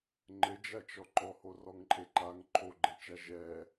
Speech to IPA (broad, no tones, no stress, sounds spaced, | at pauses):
ŋ͡ǃ ɘ d͡ʒ a t͡ʃ ɔ ǃ ɔ h o r ɔ ŋ ǃʼ e ǃ a ŋ ǃʰ o ɡ͡ǃ e t͡ʃ a ʒ ɛ